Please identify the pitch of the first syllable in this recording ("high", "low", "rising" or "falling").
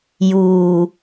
low